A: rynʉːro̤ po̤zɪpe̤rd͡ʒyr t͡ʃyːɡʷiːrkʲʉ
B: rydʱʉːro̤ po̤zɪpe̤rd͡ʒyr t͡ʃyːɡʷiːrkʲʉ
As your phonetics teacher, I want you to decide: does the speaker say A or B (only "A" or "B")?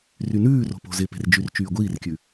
A